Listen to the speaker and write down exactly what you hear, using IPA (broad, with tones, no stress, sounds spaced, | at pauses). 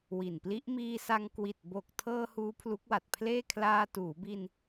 w i˨˩ n p l i˦˥ ʔ m iː˧ s a˧ ŋ k w i˨˩ t̚ b o˨˩ k̚ tʰ ɤː˧ h uː˦˥ pʰ l u˦˥ k̚ w a˨˩ t̚ pʰ l eː˥˩ kʰ l aː˧ t uː˩˦ b i˧ n